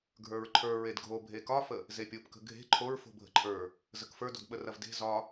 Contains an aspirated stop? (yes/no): yes